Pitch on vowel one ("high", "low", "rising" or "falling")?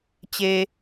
low